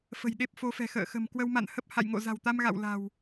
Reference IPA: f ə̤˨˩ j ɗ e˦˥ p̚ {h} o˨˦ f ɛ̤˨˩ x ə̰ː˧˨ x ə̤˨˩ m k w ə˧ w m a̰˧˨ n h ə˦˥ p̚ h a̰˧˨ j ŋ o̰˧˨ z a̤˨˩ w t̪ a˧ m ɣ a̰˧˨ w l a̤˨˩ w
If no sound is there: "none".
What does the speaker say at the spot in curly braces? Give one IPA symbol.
f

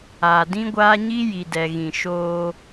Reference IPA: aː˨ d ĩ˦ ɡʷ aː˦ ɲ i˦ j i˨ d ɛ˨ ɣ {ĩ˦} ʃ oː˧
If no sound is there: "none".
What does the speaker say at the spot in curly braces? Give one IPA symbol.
ĩ˨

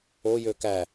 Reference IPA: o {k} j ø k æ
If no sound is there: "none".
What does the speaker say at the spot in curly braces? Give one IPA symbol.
none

